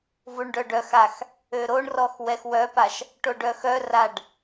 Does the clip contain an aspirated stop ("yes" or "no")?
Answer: no